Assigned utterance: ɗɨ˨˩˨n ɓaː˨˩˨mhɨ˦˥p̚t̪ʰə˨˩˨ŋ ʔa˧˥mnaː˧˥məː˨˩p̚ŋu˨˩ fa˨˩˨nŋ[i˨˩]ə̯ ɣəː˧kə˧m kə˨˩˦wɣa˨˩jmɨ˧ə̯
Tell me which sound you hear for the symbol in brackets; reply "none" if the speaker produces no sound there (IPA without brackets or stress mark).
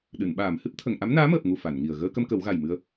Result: i˨˩